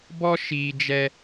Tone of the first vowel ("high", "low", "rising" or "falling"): high